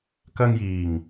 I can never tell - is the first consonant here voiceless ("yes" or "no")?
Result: yes